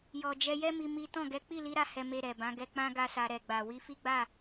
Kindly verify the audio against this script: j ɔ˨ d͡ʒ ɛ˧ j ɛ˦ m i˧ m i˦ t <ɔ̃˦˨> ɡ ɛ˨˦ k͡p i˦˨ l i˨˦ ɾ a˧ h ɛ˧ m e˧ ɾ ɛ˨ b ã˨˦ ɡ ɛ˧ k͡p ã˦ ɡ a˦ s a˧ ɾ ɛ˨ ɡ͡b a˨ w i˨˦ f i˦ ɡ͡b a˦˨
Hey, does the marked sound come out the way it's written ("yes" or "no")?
yes